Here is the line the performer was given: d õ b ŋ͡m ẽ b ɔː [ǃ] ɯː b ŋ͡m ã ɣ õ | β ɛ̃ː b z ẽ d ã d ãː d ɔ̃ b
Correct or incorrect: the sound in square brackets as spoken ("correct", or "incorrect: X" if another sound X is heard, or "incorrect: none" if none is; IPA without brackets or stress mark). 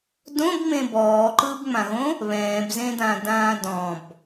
correct